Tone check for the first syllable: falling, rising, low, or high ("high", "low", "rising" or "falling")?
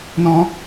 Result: high